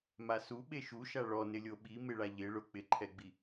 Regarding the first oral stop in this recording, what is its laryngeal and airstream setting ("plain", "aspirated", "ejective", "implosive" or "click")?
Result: implosive